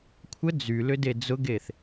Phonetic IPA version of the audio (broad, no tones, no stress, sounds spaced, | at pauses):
kʷʰ ə d͡z y l ʏ d e d͡z ʊ ɡ e θ